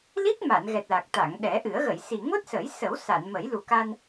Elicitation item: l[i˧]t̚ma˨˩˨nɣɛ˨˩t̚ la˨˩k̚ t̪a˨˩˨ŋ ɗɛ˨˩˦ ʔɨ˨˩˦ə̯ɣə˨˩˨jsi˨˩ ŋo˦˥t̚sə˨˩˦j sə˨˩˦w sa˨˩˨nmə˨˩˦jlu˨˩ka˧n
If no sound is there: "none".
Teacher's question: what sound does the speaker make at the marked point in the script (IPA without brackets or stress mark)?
i˦˥